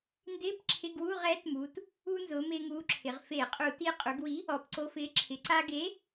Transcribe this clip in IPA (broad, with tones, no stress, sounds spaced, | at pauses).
n d ɪː˧˥˧ p ǁʰ ɪ˧˥˧ ɡ w u˧˥˧ ʁ ɛː˨˥ t m uː˩˧ t | uː˧ n z ʊː˩˧ m ɪː˧ ŋ uː˨˥ ǁʰ ɪ˩˧ ʁ f e˧˩˧ qʼ u˧˩˧ t i˧ qʼ u˩˧ ɡ w i˨˥ | ɔ˩˧ p ǀ o˧ f ɪː˨˥ ǁʰ ɪ˩˧ ǀ a˧ ɡ e˨˥